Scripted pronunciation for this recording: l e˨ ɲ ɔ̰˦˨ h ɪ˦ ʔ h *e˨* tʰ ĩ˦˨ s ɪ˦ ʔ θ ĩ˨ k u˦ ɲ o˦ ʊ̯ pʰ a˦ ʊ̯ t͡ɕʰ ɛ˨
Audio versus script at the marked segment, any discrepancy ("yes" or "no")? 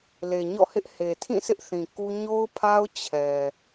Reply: no